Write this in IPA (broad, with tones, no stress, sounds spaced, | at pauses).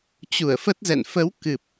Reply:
t͡ɕ u˧˩ ə̯ f ə˦˥ t̚ z ɛ̰˧˨ n f ə˨˦ w k ɨ˨˩ p̚